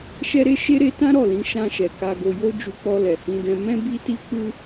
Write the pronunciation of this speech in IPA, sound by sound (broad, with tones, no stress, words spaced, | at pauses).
ʃɛ˧ɾe˧ ʃe˧ɾe˧ tã˦ ɾɔ˦˨lĩ˨˦ ʃã˧ʃɛ˨ ka˨ɡo˨jo˧ d͡ʒu˧k͡pɔ˧lɛ˨ hĩ˧dɛ̃˧ mɛ̃˧bi˧ti˧k͡pu˧